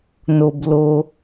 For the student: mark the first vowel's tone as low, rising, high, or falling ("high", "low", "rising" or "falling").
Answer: low